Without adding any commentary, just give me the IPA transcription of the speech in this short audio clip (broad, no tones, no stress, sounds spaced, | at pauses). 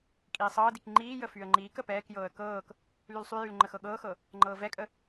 kʼ iː sˤ ɤː d i k ŋ͡ǃ iː j ə f y ə̯ ŋ͡ǃ iː k ə p ɛː k j ɤː ə̯ k ɤː k | l y l sˤ y j y l ŋ͡ǃ ə x ɤ ɠ ɤː x ɤ | ŋ͡ǃ ɤː v ɛ kʼ ə